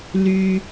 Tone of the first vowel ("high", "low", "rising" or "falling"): high